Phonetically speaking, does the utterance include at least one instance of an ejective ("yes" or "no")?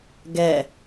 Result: no